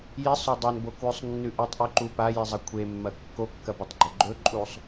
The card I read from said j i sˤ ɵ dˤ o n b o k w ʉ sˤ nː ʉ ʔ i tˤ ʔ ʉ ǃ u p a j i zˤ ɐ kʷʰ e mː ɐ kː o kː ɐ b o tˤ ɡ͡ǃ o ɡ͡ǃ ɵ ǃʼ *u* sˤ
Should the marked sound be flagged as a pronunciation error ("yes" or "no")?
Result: no